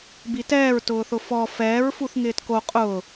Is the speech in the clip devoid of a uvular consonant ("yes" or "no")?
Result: no